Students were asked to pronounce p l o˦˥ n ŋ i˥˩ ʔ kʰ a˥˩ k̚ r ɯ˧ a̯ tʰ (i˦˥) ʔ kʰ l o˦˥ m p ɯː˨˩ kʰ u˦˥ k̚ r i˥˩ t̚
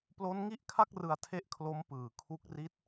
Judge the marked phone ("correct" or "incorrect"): incorrect